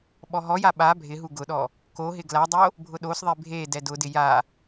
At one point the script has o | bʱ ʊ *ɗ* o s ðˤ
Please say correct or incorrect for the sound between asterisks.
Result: correct